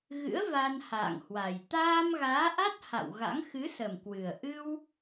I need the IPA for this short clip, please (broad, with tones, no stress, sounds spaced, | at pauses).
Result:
ɣ ɨ̰˧˥ ə̯ v a˧ n h a̰ː˧˨ ŋ h w a˨˩ j t̪ aː˧ m ɣ aː˨˦ ʔ a˦˥ t̚ h a̰˧˨ w ɣ a̰˧˥ ŋ x ɨ˨˦ s ə˨˩ m k w ɨ˨˩ ə̯ ʔ ɨ˧ w